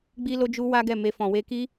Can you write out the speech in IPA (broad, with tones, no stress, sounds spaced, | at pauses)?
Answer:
ɡ͡b i˦ l o˦ d͡ʒ u˦ w a˦ ɡ ɛ˦˨ m e˧ f ɔ̃˨ w e˧ k i˦